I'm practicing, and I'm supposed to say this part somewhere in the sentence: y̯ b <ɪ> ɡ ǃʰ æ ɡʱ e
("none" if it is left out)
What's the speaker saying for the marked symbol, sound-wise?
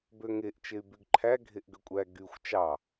y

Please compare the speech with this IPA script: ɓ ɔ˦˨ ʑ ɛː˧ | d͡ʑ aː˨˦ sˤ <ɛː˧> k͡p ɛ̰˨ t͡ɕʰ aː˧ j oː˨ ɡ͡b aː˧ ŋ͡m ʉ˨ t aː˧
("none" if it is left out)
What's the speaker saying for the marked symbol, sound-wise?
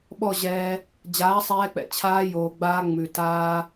ɛː˧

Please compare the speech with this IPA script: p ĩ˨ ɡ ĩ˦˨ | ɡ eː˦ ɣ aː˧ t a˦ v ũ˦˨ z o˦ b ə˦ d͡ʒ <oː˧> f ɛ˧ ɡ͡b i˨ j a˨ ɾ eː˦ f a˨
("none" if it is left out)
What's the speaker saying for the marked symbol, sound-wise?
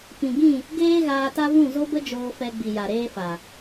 oː˧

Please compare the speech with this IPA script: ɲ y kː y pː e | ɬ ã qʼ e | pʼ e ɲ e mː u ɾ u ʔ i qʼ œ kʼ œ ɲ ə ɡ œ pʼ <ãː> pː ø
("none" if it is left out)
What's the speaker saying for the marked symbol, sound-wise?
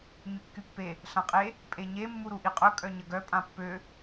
ã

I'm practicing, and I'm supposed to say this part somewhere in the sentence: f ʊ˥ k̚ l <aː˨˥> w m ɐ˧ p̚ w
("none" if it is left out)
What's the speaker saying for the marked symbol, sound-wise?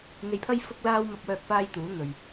aː˥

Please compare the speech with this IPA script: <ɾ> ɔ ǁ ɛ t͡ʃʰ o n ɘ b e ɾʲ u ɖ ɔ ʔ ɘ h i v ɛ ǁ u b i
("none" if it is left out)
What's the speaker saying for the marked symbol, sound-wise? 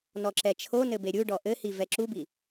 n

